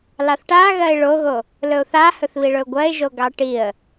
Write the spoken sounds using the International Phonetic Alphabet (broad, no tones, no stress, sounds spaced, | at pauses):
l ɑ θ ʈ a ɣ ɜ ɪ̯ ɭ o ɣ o | l ɵ ʊ̯ θ a h ɵ θ β i ɭ ɵ ʊ̯ ɡʷ ɜ ɪ̯ ʒ o ɡ ɑ ʈ i ə̯